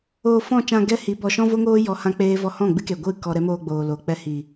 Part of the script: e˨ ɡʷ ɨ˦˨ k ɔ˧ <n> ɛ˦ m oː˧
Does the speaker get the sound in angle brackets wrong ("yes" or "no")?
yes